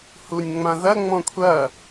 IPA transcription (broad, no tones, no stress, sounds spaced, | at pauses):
h u nʲ ŋ͡m ã ð ɐ ŋ͡m ɔ̃ kʷʰ ɐ